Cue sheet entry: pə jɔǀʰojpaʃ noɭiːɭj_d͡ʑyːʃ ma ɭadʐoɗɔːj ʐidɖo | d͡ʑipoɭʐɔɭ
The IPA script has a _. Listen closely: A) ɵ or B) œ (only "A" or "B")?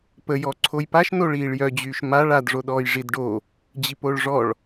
B